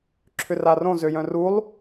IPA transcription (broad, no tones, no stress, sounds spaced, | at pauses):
ǁʰ ʏ r a r õ z ø j œ̃ r u lˠ